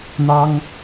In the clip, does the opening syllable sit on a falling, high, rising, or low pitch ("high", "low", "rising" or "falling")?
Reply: high